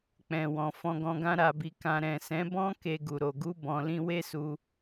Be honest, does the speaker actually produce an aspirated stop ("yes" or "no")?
no